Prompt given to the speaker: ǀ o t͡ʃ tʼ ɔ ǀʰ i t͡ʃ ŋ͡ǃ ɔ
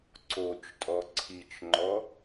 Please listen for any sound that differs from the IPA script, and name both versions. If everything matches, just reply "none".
none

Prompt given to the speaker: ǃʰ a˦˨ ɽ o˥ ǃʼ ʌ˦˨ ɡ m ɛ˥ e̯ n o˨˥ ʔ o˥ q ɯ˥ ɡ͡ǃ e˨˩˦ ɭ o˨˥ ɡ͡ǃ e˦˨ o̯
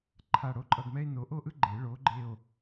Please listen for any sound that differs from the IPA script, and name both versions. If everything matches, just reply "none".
q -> ʔ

